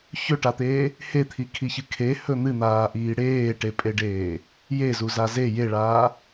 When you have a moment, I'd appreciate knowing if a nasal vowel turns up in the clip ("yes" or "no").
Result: no